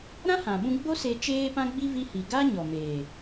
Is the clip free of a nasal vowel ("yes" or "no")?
no